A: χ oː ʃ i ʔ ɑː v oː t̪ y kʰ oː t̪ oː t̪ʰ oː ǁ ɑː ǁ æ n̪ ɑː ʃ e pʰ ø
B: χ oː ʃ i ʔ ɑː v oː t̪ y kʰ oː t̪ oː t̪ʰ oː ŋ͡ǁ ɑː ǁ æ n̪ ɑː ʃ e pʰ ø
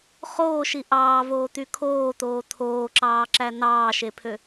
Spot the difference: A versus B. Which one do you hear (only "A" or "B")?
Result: A